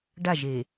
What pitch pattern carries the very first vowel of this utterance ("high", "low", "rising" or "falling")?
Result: falling